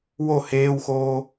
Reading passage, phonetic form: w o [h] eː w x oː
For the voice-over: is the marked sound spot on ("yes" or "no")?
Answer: yes